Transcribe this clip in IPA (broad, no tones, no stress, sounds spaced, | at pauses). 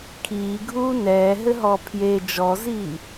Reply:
kʰ iː ɡʱ uː n ɛː ɦ ɘ ɦ ɔː pʰ j e d͡ʒ ɔ z iː